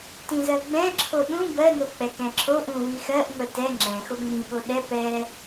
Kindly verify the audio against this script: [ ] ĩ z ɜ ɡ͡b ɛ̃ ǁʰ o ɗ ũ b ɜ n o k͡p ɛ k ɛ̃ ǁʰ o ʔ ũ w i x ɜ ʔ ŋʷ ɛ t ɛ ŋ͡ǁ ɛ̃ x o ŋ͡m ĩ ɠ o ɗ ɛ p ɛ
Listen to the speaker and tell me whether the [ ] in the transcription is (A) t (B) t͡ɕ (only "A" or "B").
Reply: A